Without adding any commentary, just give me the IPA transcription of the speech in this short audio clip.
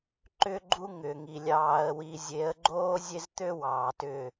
ǃ ʏ˦ ɡ͡ǃ u˦ ŋ ʏː˨ ŋ i˨ lʲ ɑː˦ ə̯ w i˦ zʲ e˨˦ ə̯ ɡ͡ǃ oː˦ zʲ e˦ z t̪ ø˦ w ɑː˨ t ʏ˦˨

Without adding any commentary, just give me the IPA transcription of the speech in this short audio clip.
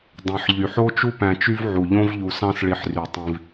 dˤ ẽ˩ ħ ʎ y˩ ħ o˥ t͡ʃ u˦ p æ̃˨ t͡ʃ y˦ v ʕ u˩ ʎ õ˦ v ʎ u˨ s ɑ̃˦ s ɭ i˨ ħ r y˩ tˤ ĩ˨ v

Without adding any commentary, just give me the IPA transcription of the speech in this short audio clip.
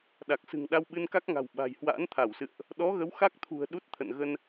ɗ a˨˩ k̚ s ɨ̤˨˩ ŋ ɗ a˧ w ɓ ɨ˧ n k a˦˥ k̚ ŋ a̤˨˩ w ɓ a̤˨˩ j h w a̰ː˧˥ n t̪ʰ a˧˩ w s ɨ̰˧˨ ə̯ ʔ | ɗ ɔ˨˦ ɣ ə˨˦ w x a˦˥ k̚ t̪ʰ ṳ˨˩ ə̯ ɗ u˦˥ t̚ t̪ʰ ə̰˧˨ n ɣ ə˧ n

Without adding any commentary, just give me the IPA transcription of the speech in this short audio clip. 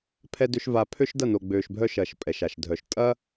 pʰ ɛ˦ d ø˦ ʃ v a˧ pʰ ø˦ ʃ d ɐ˦˨ n o˨ ɡ͡b øː˨ ʃ bʱ œ˧ ʃ ɐː˨ ʃ pʼ ɛ˨ ʃ a˨ ʃ dʱ œ˨ ʃ tʼ ɐː˦

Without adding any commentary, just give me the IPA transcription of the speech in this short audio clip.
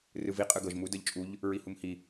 r ɯ v i qʼ ɯ ɡ ɤ ʒ m u d ɤ ʎ t͡ʃʼ u ʎ | ɹ i h u m h i

